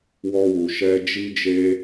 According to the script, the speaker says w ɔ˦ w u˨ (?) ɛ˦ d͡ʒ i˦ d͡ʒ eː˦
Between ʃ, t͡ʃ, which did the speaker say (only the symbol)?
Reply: ʃ